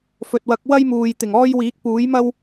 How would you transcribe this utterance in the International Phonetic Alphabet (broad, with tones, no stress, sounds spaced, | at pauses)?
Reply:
f ɵ˨ t̚ w ɐ˨˥ k̚ w ɐ˥ j m uː˨ j t̪ ɪ˨˩ ŋ ɔː˥ j w iː˨˥ k̚ p uː˨˥ j m ɐ˥ w